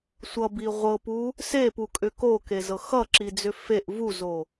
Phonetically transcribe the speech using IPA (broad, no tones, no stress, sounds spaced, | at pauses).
sʷ ʌ b i ʁʷ ɤ p u | s e p u kʼ ʏ k o k e z ɤ x ʌ ǁ i d͡z ʏ f e ʔ v u z o